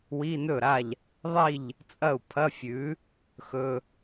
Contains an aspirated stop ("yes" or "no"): yes